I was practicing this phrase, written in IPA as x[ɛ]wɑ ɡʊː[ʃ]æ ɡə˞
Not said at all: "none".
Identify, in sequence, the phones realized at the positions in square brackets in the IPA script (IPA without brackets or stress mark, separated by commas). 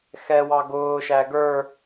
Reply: ɛ, ʃ